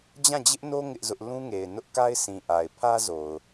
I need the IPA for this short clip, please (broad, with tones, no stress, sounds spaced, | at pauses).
d͡ʑ ã˦˨ d͡ʑ ɪ˦ ʔ n o˦ ŋ ɪ˦ ʔ z ʊ˦ ʔ l ũ˦ ŋ e˨ ɪ̯ n ʊ˦ ʔ k a˦ ɪ̯ sʰ ĩ˨ ʔ a˨ ɪ̯ pʰ ä˦ z o˨ ʊ̯